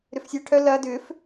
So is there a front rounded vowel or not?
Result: yes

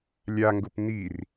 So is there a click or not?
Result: no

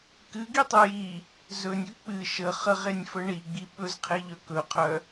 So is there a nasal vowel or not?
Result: no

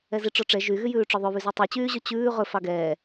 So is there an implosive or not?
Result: no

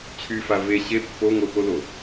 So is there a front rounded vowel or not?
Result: yes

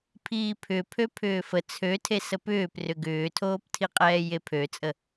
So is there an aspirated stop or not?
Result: yes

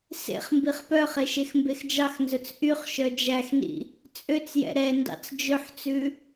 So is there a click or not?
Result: no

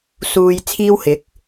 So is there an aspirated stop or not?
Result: yes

